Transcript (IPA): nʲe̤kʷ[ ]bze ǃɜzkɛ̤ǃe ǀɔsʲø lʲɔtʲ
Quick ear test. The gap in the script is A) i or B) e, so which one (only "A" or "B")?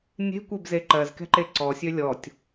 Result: B